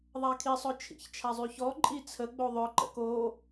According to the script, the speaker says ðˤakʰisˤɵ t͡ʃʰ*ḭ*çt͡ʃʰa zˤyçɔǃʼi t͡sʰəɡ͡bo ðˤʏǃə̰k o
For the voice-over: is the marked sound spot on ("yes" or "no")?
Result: yes